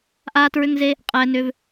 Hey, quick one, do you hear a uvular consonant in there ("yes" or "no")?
yes